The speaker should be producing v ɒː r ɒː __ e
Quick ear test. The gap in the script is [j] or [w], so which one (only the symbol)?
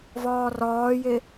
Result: j